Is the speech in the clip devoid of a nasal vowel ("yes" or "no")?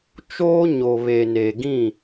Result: no